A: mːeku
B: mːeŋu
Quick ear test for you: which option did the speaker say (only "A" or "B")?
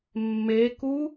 A